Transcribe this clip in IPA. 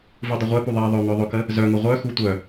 v u dˤ ə ʁʷ ɛ p u ðˤ ɛ ðˤ œ ŋ œ ðˤ ʊ k ə | z œ ŋ ʊ ʁʷ œ x u tʷ œ

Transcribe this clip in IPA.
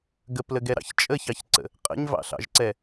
ɡ ə p l ə ɡ ɛ ɾ ɑ̰ ç t͡ʃʼ ə ç ɑ ç ǀ ə̰ | qʼ ə̰ ɲ v ɑ̰ ɬ ɑ̰ ʒ ǀ ɛ

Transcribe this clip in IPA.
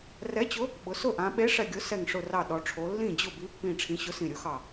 r ɛ˨˥ t͡ɕ ʊ˨˥ | ɓ ʊ˩˧ s ʊ˥˩ ʔ ã˩˧ ɓ e˨˥ ʂ ɛ˧˩ ɡʲ ʊ˨˥ s ɛ˧˩ ŋ ʂ ʊ˧˩ r ɑ˧˩ ɗ ɔ˩˧ ʈ͡ʂʰ o˩˧ lː ĩ˥˩ d͡ʑ ʊ˥˩ b i˨˥ pː ĩ˧˩ ʈ͡ʂʰ ĩ˨˥ ɕ ʊ˨˥ s ĩ˧˩ ɾʲ ʊ˨˥ x ɑ˧˩

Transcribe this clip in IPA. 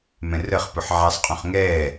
m ɛ̃ r ə χ p ʊ ħ ʕ a sˤ qʼ ũ χ ŋ ɛː

